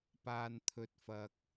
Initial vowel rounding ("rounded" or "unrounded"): unrounded